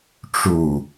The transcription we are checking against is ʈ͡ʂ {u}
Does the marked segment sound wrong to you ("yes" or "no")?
no